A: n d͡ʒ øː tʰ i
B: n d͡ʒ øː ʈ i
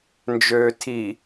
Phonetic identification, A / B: A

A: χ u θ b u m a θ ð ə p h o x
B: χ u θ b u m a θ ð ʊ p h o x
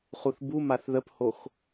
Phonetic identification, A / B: A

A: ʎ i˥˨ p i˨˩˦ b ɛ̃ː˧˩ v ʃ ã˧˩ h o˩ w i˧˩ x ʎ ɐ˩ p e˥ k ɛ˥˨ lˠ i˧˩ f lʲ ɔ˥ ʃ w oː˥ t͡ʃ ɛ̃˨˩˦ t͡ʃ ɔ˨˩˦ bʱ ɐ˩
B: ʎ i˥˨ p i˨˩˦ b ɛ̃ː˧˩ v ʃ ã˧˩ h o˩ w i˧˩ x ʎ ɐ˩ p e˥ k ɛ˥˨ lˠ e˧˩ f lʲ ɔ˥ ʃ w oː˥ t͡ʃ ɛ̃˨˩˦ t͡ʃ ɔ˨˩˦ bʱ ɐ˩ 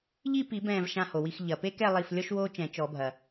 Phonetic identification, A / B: A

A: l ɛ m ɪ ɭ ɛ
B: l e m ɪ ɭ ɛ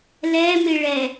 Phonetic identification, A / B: A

